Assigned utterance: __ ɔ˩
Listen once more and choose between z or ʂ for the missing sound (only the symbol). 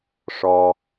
ʂ